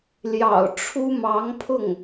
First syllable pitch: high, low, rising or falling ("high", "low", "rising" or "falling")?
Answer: low